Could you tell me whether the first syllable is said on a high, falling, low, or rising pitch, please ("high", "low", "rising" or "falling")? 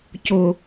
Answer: high